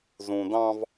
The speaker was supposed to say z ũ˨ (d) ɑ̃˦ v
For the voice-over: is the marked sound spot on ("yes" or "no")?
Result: yes